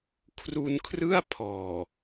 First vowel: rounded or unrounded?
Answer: rounded